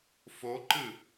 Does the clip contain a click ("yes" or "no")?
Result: yes